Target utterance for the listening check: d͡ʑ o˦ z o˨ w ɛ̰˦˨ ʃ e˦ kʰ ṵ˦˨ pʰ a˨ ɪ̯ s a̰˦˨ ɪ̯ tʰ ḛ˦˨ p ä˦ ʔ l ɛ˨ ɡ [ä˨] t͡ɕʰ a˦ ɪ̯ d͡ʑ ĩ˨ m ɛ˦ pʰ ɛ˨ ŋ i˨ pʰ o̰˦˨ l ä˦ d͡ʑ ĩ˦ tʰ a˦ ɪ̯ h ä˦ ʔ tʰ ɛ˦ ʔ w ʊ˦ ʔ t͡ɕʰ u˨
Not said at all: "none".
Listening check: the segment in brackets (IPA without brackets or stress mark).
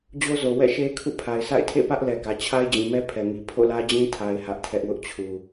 ä˨